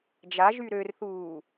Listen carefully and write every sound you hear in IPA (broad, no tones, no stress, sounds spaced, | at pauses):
d͡ʒ a ʒ y ɾ ø r θ uː